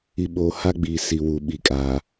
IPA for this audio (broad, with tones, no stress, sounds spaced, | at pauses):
i˨ ɓ oː˨ h a˦ ɡ͡b iː˨ s i˨ w uː˨ ɓ i˨ kʼ aː˨